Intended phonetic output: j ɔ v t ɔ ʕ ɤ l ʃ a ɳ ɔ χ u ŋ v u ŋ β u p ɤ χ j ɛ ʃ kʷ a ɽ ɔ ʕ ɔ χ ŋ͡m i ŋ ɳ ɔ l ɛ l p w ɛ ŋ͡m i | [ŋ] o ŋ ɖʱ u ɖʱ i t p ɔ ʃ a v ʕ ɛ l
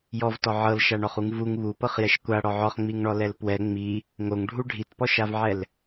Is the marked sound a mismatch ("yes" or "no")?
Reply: no